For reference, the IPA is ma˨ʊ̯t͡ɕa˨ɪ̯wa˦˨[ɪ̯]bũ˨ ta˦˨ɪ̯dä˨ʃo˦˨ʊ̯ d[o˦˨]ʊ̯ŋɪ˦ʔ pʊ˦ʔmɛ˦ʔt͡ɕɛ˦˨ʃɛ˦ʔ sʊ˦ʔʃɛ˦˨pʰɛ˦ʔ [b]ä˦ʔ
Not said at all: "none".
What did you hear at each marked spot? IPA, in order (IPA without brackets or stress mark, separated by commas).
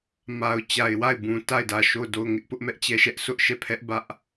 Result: ɪ̯, o˦˨, b